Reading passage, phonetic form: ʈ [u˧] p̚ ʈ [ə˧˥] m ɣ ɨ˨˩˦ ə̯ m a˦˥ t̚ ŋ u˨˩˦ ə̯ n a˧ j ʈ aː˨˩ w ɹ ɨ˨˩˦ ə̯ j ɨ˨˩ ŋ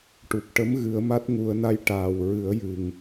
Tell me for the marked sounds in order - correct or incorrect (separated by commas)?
incorrect, correct